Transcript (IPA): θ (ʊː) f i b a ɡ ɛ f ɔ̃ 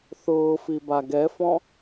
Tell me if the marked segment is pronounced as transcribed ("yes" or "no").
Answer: yes